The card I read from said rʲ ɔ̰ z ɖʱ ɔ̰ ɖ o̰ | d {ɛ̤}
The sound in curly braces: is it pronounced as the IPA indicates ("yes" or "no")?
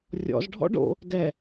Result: no